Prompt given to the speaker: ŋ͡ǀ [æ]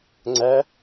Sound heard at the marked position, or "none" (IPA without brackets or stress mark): æ